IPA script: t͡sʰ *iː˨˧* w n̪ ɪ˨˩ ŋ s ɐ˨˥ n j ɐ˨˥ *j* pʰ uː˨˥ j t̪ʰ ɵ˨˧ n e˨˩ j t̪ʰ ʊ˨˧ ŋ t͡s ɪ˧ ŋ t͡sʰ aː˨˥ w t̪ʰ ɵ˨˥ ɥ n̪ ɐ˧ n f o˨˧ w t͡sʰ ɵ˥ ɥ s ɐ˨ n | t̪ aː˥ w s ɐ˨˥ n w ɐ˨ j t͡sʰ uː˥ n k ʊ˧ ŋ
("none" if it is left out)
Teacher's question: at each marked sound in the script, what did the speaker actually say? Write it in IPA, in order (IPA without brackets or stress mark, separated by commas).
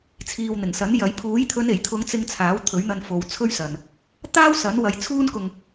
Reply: iː˨, j